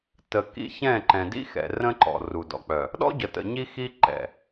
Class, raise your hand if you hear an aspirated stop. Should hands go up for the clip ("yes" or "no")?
no